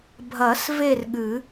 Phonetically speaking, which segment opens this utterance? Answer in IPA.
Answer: bʱ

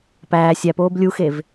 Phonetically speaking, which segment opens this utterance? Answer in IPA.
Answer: p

